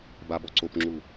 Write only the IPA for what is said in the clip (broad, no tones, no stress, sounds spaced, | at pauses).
b a b ɔ ǀ o p ŋ͡ǁ u